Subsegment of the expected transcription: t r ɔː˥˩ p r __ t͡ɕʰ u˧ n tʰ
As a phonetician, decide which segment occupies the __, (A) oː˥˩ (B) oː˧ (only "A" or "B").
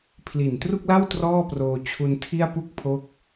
B